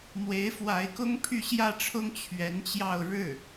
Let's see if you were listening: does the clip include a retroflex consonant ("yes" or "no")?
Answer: yes